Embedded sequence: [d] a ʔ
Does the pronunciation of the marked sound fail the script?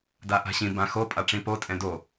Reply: no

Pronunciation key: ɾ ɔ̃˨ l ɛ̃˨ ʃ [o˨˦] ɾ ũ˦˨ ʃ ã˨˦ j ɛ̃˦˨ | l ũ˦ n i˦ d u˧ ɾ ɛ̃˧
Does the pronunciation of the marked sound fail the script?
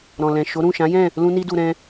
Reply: no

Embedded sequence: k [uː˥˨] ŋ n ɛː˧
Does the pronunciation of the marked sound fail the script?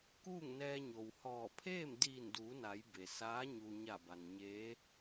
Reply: no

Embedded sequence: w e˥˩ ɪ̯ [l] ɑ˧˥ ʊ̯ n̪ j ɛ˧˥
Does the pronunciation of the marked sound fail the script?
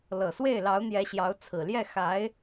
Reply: no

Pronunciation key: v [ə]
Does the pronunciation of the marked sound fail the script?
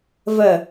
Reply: no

